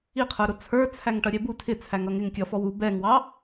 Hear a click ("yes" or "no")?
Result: no